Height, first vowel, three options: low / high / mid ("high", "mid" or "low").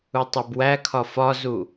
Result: high